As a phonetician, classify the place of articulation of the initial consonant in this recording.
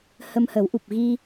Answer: glottal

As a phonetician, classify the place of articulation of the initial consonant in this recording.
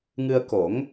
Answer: velar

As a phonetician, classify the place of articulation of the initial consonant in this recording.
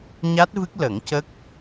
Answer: palatal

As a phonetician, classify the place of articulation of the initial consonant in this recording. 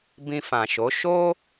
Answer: labial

